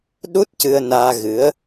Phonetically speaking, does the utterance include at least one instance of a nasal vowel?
no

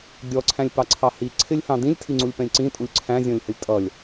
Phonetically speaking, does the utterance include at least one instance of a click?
yes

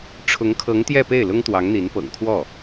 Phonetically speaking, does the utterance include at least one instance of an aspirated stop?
yes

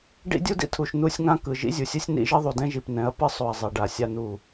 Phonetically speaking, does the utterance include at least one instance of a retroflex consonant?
yes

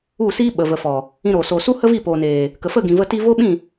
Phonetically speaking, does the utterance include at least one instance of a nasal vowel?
yes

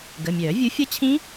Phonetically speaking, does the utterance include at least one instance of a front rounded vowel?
yes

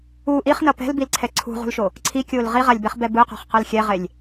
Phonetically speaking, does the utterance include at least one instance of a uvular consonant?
yes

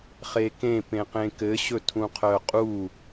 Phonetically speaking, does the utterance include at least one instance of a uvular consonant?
yes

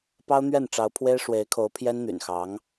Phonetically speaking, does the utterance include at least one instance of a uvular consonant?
no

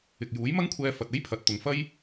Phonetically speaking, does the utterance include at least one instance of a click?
no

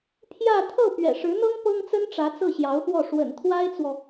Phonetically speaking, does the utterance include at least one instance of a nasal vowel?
no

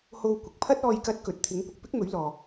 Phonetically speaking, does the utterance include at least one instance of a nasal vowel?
no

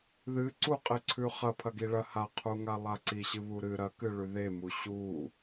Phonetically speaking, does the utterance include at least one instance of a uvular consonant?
yes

